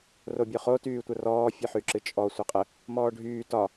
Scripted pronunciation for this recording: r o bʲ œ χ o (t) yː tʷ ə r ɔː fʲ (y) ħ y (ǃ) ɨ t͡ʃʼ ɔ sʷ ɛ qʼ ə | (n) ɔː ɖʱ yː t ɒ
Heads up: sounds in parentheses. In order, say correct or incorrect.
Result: correct, incorrect: ɨ, incorrect: ǁ, incorrect: m

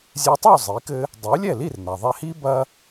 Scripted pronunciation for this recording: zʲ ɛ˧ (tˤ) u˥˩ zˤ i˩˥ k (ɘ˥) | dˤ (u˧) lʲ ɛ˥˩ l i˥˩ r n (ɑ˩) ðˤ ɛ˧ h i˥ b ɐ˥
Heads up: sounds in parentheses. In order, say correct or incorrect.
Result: correct, correct, incorrect: u˩˥, incorrect: a˩

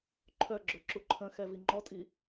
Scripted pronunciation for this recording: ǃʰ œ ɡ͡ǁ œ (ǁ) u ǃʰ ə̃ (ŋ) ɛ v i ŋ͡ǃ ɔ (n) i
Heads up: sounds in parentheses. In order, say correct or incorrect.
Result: correct, incorrect: x, incorrect: tʼ

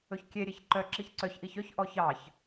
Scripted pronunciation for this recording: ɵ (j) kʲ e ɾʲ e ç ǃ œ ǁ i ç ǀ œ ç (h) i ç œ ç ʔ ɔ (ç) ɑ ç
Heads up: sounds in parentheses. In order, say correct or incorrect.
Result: incorrect: ç, incorrect: ʔ, correct

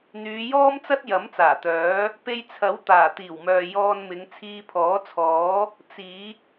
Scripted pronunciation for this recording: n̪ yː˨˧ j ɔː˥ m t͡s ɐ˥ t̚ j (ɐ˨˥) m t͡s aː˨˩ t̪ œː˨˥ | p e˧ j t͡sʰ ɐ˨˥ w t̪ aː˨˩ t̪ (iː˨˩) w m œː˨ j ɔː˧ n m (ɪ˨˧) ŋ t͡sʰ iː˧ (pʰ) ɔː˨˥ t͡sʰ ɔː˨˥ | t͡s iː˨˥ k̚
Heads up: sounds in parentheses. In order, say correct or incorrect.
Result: correct, correct, correct, correct

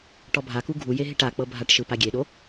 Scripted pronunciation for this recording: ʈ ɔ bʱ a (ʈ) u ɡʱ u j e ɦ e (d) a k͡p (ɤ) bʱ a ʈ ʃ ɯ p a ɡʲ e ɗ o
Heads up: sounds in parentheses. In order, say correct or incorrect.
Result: incorrect: k, incorrect: ʈ, correct

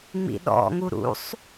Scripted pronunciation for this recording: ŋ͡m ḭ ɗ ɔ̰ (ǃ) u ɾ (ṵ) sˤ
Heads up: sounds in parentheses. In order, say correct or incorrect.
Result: incorrect: ŋ, correct

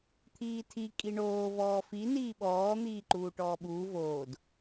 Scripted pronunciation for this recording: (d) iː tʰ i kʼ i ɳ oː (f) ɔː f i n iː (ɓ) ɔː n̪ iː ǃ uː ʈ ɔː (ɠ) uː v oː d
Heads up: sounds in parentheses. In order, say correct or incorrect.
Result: incorrect: t̪ʰ, incorrect: v, correct, incorrect: ɓ

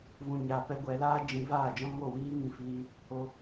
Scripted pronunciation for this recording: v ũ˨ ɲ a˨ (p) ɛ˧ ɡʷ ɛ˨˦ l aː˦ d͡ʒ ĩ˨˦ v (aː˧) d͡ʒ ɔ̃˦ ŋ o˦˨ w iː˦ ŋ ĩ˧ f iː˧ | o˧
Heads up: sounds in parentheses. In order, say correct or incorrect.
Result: correct, incorrect: aː˦˨

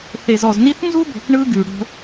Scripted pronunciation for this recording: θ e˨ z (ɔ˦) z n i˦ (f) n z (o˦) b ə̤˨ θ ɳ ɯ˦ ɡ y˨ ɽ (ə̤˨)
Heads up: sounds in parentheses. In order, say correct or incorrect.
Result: incorrect: ɔ˨, incorrect: θ, incorrect: u˦, incorrect: ə̤˦

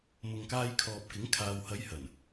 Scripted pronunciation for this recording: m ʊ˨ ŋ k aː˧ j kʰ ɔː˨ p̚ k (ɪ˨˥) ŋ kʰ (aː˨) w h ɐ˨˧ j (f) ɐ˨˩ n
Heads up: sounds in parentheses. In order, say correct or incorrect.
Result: correct, correct, incorrect: h

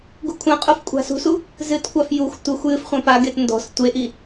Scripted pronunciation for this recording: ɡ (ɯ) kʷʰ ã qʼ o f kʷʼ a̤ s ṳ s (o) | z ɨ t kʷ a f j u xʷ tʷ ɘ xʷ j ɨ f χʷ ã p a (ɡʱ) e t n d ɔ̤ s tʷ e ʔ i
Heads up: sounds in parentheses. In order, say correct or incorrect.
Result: incorrect: u, incorrect: u, incorrect: ɡ

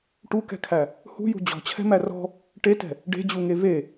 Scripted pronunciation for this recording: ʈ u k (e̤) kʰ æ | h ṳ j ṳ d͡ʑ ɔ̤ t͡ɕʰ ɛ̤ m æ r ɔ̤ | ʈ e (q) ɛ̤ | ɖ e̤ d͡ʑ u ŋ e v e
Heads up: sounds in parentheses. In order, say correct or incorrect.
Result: incorrect: ɛ̤, incorrect: t

